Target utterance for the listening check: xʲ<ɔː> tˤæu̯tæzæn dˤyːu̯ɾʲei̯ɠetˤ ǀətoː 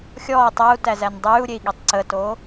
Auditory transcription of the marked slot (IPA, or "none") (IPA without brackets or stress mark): ɔː